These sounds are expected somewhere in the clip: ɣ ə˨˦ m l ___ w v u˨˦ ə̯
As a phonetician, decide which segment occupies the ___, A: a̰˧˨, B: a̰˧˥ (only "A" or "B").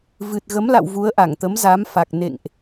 A